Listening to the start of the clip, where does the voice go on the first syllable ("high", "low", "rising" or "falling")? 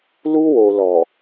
high